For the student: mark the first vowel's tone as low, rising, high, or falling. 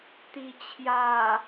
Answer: low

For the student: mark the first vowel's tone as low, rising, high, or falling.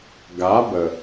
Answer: rising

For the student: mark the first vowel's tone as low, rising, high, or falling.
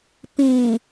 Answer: low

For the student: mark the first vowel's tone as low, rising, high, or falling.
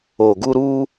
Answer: low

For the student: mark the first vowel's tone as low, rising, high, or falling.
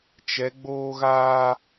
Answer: rising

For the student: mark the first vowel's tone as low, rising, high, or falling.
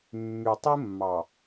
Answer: low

